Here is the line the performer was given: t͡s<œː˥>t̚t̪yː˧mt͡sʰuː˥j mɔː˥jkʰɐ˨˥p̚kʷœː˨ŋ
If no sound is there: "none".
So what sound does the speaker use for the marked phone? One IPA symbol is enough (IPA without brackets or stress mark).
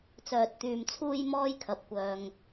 œː˧